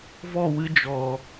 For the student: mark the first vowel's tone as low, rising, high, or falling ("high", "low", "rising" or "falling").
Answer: falling